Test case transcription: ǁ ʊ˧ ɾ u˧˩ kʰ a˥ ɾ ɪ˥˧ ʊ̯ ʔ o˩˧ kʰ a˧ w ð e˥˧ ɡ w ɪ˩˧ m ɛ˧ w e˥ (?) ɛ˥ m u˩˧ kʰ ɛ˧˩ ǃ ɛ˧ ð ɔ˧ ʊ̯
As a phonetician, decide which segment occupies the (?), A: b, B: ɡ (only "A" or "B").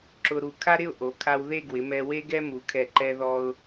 B